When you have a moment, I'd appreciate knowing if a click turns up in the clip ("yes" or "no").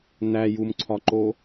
yes